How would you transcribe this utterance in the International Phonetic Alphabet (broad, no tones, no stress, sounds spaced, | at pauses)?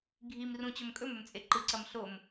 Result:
ɡʱ i m r ũ t͡ɕ ɵ m kʼ ɵ m ɵ m t͡sʼ e ǃ ɨ ǀ ɐ m ɬ o m